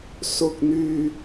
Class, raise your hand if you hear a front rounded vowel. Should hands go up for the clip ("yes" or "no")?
yes